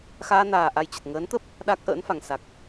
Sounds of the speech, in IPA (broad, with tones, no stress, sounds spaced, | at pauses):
x aː˧ n aː˨˩ ʔ a˧ j t͡ɕ ə˨˩ t̚ ŋ əː˨˦ n t̪ ə˦˥ p̚ | ɗ a˦˥ k̚ ʔ ə̰ː˧˥ n f a˨˩ ŋ s a˨˩ k̚